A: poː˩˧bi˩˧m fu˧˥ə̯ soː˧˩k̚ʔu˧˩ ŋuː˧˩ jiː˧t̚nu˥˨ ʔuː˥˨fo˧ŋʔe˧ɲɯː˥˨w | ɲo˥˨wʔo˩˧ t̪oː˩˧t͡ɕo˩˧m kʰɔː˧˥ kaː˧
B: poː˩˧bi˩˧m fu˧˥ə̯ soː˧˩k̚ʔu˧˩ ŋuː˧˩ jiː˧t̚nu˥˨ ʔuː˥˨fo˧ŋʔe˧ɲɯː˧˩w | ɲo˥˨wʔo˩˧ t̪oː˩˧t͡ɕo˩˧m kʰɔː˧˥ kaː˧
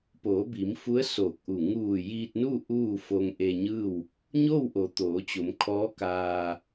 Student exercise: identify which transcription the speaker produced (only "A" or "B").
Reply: A